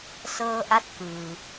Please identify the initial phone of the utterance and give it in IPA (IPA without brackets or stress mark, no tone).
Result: s